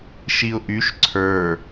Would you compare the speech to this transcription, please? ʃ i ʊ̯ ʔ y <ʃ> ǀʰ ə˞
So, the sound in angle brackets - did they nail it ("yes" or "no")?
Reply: yes